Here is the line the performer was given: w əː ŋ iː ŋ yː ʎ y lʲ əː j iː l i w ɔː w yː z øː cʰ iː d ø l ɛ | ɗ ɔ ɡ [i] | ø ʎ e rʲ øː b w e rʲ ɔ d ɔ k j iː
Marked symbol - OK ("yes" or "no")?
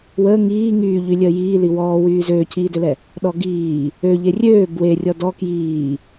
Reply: no